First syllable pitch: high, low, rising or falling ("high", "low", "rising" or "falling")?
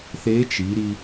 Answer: rising